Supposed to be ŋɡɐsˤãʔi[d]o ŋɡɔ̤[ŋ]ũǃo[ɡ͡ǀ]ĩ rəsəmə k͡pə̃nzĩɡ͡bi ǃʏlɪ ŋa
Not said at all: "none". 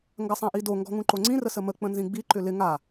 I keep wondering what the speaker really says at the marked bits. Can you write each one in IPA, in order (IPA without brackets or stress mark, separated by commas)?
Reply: d, ŋ, ŋ͡ǀ